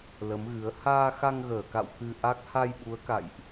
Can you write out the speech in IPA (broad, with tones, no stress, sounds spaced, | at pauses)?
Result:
l ə˨˦ m ɣ ɨ˨˦ ə̯ h aː˧ x a˧ ŋ ɣ əː˧˩ k a̰˧˨ w k ɨ˧ ʔ a˦˥ k̚ h a˧ j ɓ u˨˦ ə̯ k a̰˧˨ j ʔ